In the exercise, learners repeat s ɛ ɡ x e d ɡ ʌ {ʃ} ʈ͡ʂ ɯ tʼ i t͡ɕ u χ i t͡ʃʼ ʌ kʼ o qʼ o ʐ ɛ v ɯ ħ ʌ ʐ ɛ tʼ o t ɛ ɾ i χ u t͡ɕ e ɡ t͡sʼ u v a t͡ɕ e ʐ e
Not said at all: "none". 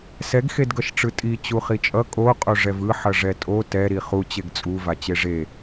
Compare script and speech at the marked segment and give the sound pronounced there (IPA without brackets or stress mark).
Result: ʃ